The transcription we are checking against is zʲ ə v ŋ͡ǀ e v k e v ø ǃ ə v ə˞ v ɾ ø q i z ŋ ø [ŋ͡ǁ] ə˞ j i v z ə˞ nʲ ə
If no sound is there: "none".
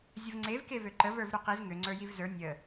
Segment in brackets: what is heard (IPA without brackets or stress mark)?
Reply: ŋ͡ǀ